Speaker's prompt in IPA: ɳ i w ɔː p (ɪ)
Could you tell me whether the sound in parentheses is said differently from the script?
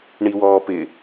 no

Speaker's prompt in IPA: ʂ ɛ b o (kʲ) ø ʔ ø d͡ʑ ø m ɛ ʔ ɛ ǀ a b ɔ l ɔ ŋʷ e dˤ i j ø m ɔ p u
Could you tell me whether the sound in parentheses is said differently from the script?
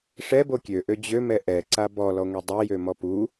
no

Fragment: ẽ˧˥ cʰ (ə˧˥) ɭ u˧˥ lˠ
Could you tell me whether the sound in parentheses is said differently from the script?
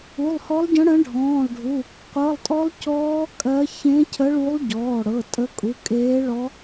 no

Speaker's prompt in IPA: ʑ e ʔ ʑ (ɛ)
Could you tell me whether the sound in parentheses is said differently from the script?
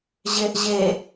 yes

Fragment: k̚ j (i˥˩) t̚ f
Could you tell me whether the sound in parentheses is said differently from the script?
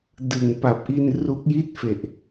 no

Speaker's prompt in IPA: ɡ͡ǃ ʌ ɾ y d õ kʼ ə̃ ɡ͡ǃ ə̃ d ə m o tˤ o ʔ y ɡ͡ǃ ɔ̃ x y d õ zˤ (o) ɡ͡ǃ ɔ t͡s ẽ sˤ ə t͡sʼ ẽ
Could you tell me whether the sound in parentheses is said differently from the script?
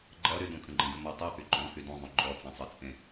yes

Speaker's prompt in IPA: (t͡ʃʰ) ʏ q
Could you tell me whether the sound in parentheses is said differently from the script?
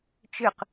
yes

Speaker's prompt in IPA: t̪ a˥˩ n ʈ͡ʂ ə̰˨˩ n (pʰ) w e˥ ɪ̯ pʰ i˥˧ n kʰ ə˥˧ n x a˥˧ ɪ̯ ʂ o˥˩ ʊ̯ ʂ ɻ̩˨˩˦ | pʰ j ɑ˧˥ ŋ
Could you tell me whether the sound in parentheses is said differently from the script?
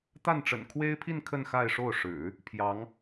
yes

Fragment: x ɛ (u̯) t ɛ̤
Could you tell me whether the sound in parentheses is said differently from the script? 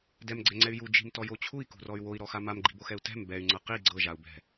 no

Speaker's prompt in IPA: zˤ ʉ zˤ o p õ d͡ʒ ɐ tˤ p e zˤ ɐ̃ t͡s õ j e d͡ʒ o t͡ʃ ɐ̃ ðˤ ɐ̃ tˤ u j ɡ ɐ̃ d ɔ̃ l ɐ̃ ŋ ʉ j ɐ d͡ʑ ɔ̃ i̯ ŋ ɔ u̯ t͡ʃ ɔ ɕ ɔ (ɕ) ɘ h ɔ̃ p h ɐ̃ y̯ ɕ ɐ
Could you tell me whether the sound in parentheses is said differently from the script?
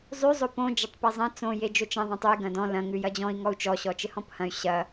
yes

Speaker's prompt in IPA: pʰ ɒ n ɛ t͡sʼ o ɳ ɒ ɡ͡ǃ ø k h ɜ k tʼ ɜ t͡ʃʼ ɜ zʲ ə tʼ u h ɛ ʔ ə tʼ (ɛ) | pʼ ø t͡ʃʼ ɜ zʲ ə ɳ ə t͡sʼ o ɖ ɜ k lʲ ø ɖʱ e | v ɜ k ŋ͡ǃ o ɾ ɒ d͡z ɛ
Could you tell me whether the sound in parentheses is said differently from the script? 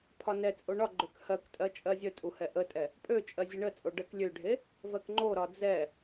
no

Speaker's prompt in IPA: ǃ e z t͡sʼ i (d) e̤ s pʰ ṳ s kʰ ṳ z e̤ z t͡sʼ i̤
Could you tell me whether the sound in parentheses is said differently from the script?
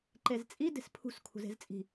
no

